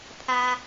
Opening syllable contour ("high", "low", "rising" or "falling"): low